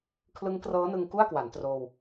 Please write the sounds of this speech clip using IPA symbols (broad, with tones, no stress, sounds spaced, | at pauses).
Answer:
kʰ l ɯ˦˥ ŋ k r ɤː˦˥ n ɯ˧ ŋ k u˥˩ a̯ k w a˩˦ n t r oː˧ w